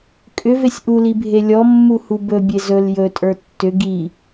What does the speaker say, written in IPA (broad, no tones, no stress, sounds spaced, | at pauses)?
kʼ ʏ v e sʲ ʔ u l i bʱ e lʲ ɔ mː u h u b ɵ bʲ e z ɵ l j ɵ tʼ ə˞ tː ʏ ɡ i